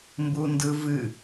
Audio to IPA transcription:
m b u n d ɯ v ɨ

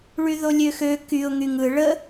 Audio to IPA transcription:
ɭ y ð o lʲ ø x ø k y ʊ̯ ŋ y ŋ ɯ ɭ ə

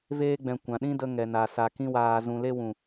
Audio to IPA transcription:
v eː˦ ɡ͡b ɛ̃˨ kʷ ã˨ ɗ ĩ˦ d ə˧ ŋ ɛ˨ n a˨ s a˨ k ĩ˦ w aː˨ z ũ˨ l e˦ w ũ˨

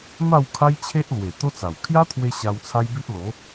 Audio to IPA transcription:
m a˥˧ w kʰ a˦ j t͡ɕʰ e˦ ʔ l w e˨˩ t̪ o˦ t͡s a˨˩ w kʰ j a˦ t̪ʰ w e˧ ɕ a˧ w t͡sʰ a˦ j b i˦ ʔ l o˨˦

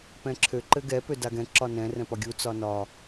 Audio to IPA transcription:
p ɛ̃ ǁʰ ø ǃ ɘ ɡ ɛ p ø d a ɡ ɛ̃ ǁ ɒ n ɛ̃ r ɛ̃ p ɒ ɡʲ u t͡s ɒ n ɒ

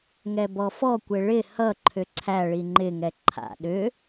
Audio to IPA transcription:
ŋ ɛ b ɔ f ɔ kʷ e ɭ ɪ h ʌ ǃʰ ʏ ǀʰ æ ɭ i ŋ͡ǃ ɪ ŋ ɛ ǃʰ a̰ ɗ ʏ

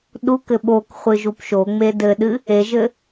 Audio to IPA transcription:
ɗ u k ɘ ɓ o k χʷ ɨ ʒ u p ʃ o ŋ͡m e d ɘ ɗ ɨ | e ʒ ɘ

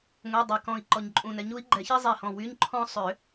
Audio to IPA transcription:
ŋʷ e˧˥˧ dˤ e˧˩ k ɔ̃˧ i̯ ǃ ɔ˧ ɲ ǃʼ ũ˧ n ɛ˨˥ ɲ u˨˥ i̯ ɡ͡ǃ ɛ˨˩˦ ç i˥ zˤ i˧˩ h ɔ̃˧˩ w y˧˥˧ ɲ ǃʰ ɔ̃˥ sˤ ʏ˨˩˦

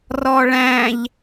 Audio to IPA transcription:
r ɔ ɭ æ̃ ʎ

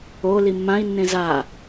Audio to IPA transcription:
o l i mː ã i̯ nː ẽ z a

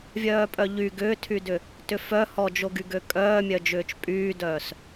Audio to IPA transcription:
vʲ œː pʼ œ ʎ y ɡ ʏː tʰ y d ʏ | t ʏ f œ h ɔ d͡ʒ o ɡ y ɡ ø kʼ œː mʲ œ d͡ʒ ʏː t͡ʃ pʼ yː d œː s

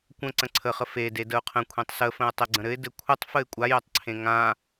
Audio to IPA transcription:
kʷ ə̃ ǀ ə̃ ǀʰ ə χ ə f e d e d ə ʊ̯ qʰ ə̃ kʷʰ ẽ tˤ s ə f ə̃ ʊ̯ tˤ ɘ ɡ͡ǀ ə̃ ɾ ɘ ɪ̯ d ɘ kʷʰ ə tˤ f ə ɪ̯ kʷʼ a j ɵ tˤ ǀʰ ẽ ŋ ã

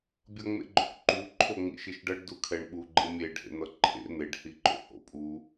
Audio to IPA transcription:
bʲ ʌ ŋ͡m ḛ ɡ͡ǃ o̰ k ǃ u ǃʰ o ŋ͡m ḭ ʃ i ʃ ɖ ʌ ɖ d u kʰ ɛ ɳ ɓ u ɡ͡ǃ ɯ mʲ e ɖ h ḛ n̪ ʌ ǃʰ ḛ n̪ e ɖ h i ǃ o̰ h o̰ pʼ u

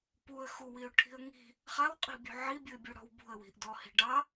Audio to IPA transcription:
p u ə̯ x u w i ʊ̯ ʈʰ i̤ ə̯ ŋ i̤ | χ a w qʼ i̤ bʲ ṳ ʕ i bʲ u ɪ̯ bʲ u ɽ ɔ̤ w b ṳ ə̯ w i̤ ʔ d ɔ h i̤ ɖ ɑ

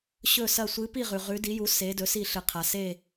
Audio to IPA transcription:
ɕ ɵ˥˧ s ɐ˥˧ sʷ ɨ˧˥ p i˥˧ ʁ ʉ˨ ʁ ʉ˧˥ d i˧˥ j u˧˥ s e˧˥ d ɵ˧˥ s i˥˧ ɬ ɨ˨ qʰ a˨ s e˥˧

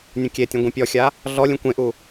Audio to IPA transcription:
nʲ ũ kʲ e tʲ ũ ɡʷ ẽ pʲ ɔ xʲ a | ɮ ɔ lʲ ũ kʷ ẽ ʔ u

